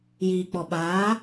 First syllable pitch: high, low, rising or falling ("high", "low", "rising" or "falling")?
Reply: low